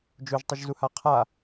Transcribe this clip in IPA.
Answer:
d͡ʒ o ʒ tˤ ɨ ʒ z u h a qʰ a

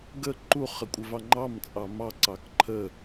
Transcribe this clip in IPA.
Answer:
ɡ ə ǃ u χ ə kʷʼ ə v ɑ ŋ͡ǃ ɑ m t͡sʼ ɑ m ɑ ǀ ɑ k ǃʰ ə

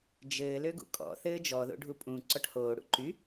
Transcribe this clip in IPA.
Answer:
d͡ʒ ɘː l ø ɡ ṵ kʼ ɔ̰ θ ɘː d͡ʒ ɔ ð o̰ ɖʱ u pʼ ũ ǀ ɔ ʈ h oː ɽ ṵ ǃ y

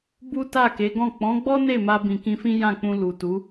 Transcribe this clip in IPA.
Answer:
b u˦ t a˦˨ k e˨˦ ɡ ɔ̃˦˨ k͡p ɔ̃˨˦ ɡ͡b ɔ˦ n e˦˨ m a˧ b ĩ˨ k ĩ˧ f ĩ˦ j ã˦˨ k͡p ũ˧ l u˨ t u˨˦

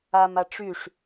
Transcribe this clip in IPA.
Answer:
a m a ʈ͡ʂ y ʂ

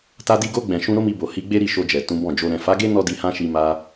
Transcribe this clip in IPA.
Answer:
t a˧ d i˧ ɡ o˧ ɡ͡b ɛ̃˨ ʃ ũ˧ ɾ o˦ m i˧ b o˨ h i˨˦ ɡ͡b e˦ ɾ i˦˨ ʃ o˧ d͡ʒ ɛ˨ t ũ˨˦ b ɔ̃˦˨ d͡ʒ o˧ ɾ ɛ̃˨ f a˨˦ ɡ e˦ n ɔ˦ d i˧ h ã˦ ʃ i˧ m a˧

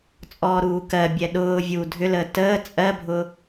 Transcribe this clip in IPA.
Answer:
t͡sʼ ɔː ɾ uː k ɜ bʲ ɛ ɗ ʊː vʲ uː dʱ ʏ l əː t əː t͡sʼ ɜ bʱ ʊ

